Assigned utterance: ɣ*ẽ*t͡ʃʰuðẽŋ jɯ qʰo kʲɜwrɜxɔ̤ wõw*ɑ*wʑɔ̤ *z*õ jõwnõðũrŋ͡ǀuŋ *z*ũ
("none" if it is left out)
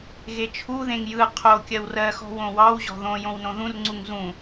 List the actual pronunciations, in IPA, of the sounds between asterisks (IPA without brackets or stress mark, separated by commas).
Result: e, ɑ, ð, z